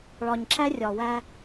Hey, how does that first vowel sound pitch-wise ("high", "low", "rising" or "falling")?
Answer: low